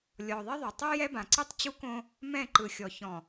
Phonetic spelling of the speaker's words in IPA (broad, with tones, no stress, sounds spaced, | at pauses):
lʲ ɔ˨ ðˤ i˦ ðˤ o˨ tˤ ɯ˦ j ɛ˦ b ã˨ ǀ i˦ tˤ t͡ɕ u˦ k õ˦ | m ɛ̃˦˨ ǃ ɯ˨ xʲ ɔ˨ ç ɔ̃˨